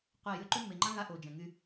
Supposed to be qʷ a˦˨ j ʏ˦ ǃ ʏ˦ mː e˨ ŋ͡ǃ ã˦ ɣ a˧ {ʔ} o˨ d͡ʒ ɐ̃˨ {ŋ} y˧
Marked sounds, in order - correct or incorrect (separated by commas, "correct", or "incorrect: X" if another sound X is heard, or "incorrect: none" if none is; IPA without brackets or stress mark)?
correct, correct